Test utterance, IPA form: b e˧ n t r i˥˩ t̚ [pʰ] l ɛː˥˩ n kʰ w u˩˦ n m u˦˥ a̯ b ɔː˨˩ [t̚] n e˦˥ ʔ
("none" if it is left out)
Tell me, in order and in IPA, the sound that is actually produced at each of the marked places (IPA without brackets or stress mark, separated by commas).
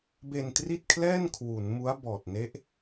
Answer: kʰ, t̚